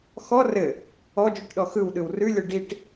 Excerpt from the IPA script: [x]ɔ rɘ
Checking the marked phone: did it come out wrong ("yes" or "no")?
no